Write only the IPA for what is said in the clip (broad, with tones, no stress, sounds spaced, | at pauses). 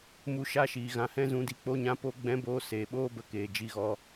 m u˧ ʃ a˦ ʃ iː˨ ɣ ã˧ h ɛ̃˦ z ũ˨˦ d i˨ k͡p o˦ ɲ ã˦ p o˦ ɡ͡b ɛ̃˦ b oː˦ s eː˨ ɓ oː˦ b ə˧ k eː˨ d͡ʒ i˧ ɣ ɔ˧